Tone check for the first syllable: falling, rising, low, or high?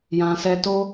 low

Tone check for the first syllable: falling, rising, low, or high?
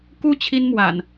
high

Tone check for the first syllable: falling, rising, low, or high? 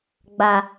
low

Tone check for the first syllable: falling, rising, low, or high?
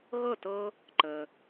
falling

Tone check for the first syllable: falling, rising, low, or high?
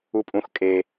low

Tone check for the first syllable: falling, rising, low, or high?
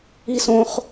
high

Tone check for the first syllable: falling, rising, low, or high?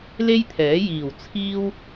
high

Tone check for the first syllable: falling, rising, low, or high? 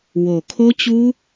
low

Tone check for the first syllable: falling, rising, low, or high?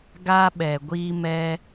high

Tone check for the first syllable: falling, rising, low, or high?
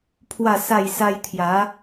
falling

